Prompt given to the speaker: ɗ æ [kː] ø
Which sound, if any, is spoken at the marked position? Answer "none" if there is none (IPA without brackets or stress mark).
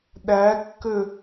kː